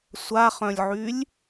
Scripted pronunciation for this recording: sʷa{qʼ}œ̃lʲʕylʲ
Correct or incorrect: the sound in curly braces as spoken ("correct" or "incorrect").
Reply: incorrect